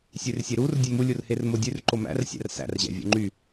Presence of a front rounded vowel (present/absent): present